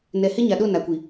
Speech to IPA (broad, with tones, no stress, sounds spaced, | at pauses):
n ɛ˨ h ɪ˦ ɲ a˨ ɗ o˦˨ n a˨ kʷ i˨